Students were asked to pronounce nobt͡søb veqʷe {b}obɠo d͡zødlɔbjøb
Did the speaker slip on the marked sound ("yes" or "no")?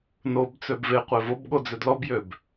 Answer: yes